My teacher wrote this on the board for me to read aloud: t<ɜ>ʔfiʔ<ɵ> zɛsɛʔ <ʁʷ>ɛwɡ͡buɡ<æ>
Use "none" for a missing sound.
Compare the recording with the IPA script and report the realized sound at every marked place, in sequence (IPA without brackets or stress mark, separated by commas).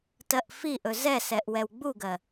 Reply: ɜ, ɵ, w, ɜ